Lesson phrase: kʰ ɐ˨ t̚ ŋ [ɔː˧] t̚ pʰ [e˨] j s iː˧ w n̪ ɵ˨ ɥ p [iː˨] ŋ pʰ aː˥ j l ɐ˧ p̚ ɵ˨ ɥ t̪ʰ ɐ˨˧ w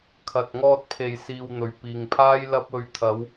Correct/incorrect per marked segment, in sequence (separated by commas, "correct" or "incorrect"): correct, correct, correct